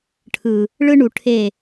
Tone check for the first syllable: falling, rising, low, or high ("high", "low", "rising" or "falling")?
low